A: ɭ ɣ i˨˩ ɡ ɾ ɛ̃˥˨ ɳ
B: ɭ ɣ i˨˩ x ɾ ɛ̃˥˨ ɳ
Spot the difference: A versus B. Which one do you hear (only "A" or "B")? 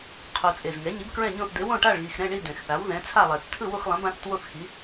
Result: B